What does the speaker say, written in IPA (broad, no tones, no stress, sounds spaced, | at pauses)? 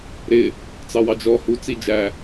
ɾ ɪ | t͡s ɑ w ɑ d͡ʒ ɔ h u t͡s i d͡ʒ æ